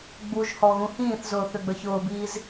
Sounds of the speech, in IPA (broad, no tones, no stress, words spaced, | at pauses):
ɡ͡buʒhɔ ɣũhĩːθzʊː θʏɡ͡bə˞çʊːbiːz